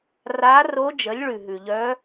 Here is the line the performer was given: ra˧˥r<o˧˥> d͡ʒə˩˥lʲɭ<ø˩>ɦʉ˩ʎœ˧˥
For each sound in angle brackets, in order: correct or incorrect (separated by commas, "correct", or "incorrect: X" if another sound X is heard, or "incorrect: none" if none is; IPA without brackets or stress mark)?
correct, incorrect: ʉ˩